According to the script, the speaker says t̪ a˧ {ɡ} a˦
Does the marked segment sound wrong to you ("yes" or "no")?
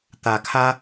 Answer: yes